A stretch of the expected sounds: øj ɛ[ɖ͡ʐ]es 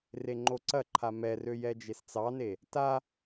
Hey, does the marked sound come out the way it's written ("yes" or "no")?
no